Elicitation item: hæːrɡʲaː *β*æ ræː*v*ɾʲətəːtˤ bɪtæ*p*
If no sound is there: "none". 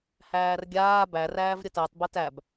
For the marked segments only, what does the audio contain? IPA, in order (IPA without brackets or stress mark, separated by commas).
b, v, b